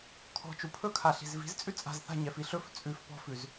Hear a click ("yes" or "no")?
no